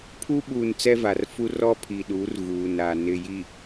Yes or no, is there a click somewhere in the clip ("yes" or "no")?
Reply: no